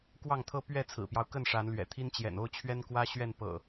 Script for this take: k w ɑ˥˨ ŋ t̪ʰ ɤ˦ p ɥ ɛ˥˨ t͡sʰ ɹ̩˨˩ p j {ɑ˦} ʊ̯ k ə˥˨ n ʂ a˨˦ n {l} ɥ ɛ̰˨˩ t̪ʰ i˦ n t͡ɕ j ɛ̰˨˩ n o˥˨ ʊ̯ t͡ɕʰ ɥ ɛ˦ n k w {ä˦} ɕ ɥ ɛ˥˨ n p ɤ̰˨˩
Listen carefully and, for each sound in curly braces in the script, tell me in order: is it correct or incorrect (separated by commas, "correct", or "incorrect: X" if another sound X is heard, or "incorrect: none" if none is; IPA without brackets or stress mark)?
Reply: correct, correct, correct